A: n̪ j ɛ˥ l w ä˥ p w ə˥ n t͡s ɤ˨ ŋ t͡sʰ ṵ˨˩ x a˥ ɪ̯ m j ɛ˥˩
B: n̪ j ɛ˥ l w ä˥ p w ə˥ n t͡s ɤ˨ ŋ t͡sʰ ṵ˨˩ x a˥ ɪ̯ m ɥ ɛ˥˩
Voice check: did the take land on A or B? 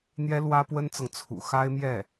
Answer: A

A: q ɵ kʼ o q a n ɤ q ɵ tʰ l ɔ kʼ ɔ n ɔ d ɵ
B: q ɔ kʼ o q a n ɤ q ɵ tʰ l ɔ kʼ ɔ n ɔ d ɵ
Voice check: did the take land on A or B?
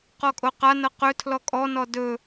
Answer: B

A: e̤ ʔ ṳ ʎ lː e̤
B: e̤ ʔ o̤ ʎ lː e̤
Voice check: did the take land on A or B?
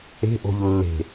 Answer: B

